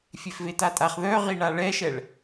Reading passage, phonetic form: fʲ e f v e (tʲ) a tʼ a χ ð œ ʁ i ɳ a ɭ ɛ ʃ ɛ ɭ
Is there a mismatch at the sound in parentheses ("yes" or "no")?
yes